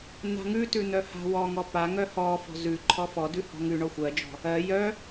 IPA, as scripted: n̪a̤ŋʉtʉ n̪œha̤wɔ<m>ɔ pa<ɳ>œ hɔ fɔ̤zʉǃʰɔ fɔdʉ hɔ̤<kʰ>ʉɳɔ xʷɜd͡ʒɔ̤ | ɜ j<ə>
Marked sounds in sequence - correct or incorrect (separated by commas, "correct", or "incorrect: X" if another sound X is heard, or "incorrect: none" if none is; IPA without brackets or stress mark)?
incorrect: ŋ, incorrect: ŋ, incorrect: ŋ, incorrect: œ